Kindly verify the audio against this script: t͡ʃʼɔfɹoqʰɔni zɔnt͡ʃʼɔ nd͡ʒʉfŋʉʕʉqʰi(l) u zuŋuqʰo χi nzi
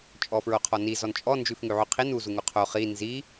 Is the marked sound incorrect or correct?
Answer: incorrect